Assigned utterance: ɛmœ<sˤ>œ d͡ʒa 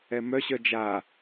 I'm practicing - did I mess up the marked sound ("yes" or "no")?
yes